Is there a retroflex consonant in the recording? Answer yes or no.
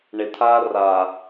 yes